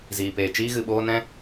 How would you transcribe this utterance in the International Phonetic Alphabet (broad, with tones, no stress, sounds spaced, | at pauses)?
z iː˨ p eː˨ t͡ʃ iː˧ ɣ ɨ˨ ɓ oː˧ n ɛ̃˦